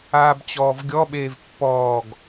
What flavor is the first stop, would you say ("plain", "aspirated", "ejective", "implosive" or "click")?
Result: plain